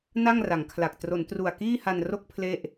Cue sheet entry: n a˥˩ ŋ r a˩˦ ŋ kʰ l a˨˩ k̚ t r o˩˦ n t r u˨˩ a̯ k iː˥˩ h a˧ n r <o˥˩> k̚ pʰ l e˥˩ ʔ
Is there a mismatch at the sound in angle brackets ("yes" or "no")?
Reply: no